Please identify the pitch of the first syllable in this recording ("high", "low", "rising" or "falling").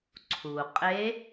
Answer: low